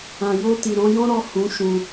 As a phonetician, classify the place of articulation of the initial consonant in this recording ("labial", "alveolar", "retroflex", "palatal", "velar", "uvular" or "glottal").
palatal